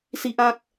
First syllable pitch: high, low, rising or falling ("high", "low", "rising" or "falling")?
high